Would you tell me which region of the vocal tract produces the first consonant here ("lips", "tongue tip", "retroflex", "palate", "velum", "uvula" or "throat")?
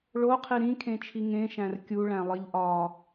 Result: retroflex